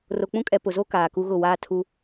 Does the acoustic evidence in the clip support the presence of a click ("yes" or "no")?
no